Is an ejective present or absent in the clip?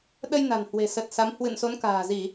absent